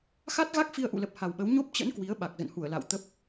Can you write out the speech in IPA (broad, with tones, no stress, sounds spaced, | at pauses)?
x a˦˥ t̚ ɣ a˦˥ k̚ f i˧ ə̯ ʔ ṵ˧˨ l ə˨˩ p̚ h a˨˩ w ɓ ə˨˦ w ɲ o˦˥ p̚ t͡ɕ ə̰˧˥ n k w i˨˦ ə̯ ɓ a˨˩ k̚ z ə̰˧˨ n h u˧˩ ə̯ l a̰˧˨ w t̪ ə˦˥ p̚